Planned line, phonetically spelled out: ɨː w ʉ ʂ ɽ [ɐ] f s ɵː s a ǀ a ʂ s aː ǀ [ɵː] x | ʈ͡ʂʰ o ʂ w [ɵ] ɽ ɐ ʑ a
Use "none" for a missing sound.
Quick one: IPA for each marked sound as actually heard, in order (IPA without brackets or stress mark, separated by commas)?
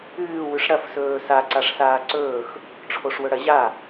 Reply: ɐ, ɵː, ɵ